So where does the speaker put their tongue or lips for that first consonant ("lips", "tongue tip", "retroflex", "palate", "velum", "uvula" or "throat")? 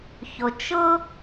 palate